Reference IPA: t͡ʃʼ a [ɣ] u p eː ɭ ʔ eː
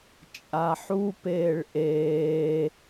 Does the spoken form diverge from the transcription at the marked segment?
yes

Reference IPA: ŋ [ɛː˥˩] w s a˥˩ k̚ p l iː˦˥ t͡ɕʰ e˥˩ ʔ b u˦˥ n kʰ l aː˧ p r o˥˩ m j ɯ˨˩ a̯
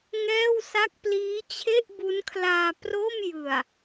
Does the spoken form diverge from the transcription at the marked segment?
no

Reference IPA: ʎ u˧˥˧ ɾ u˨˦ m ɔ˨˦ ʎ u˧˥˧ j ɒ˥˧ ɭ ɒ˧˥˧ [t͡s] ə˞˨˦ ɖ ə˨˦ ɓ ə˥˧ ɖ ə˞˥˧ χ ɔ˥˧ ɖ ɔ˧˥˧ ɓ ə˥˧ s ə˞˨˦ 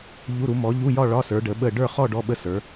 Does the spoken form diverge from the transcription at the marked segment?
yes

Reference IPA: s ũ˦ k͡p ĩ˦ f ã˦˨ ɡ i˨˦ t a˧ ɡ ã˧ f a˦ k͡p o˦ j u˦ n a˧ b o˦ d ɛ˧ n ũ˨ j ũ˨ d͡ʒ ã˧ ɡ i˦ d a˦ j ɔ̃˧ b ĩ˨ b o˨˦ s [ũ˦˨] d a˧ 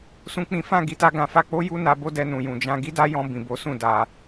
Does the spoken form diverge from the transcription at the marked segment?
no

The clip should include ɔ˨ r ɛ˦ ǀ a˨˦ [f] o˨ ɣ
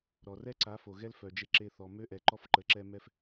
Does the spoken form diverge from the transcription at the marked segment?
no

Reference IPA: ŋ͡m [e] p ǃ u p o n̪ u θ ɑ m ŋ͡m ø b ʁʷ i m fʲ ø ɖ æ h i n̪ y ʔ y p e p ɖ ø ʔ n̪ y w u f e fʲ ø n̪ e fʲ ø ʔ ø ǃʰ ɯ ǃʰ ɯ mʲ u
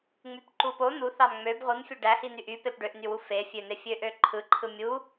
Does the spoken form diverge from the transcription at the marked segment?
yes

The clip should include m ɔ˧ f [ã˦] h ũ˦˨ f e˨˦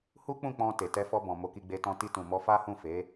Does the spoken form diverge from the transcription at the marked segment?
yes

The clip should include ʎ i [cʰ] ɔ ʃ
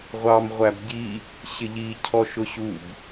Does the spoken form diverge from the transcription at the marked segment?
no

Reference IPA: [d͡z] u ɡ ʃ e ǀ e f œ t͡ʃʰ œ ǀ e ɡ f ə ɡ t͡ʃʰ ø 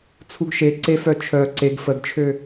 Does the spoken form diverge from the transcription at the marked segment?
yes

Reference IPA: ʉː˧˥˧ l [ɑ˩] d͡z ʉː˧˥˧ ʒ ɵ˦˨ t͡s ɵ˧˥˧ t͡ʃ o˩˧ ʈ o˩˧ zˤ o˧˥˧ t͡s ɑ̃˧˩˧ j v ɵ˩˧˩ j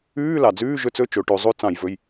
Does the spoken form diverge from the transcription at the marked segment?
no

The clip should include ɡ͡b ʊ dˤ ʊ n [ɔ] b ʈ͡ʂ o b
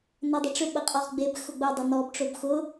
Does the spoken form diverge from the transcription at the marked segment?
no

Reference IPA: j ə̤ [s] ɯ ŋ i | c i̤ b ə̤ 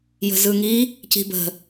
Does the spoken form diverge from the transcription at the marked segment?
yes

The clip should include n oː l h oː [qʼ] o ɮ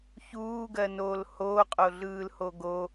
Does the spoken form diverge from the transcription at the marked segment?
no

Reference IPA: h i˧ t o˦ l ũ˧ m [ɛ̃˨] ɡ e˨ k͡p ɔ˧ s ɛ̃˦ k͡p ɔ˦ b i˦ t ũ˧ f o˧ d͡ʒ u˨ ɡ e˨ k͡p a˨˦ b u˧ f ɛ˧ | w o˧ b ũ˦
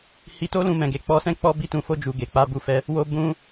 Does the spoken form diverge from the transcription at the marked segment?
no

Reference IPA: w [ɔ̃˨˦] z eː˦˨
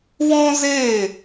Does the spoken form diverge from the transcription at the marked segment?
yes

